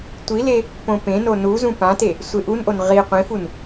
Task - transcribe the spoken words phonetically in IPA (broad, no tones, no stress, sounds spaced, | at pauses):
tʷ i l e | p õ p ẽ n o n u z ũ p ã t e | sʷ e ʔ u n ʔ o n ʁ i qʷ ĩ f u n